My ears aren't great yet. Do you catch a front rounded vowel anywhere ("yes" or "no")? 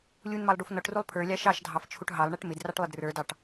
no